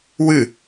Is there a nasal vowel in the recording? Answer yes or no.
no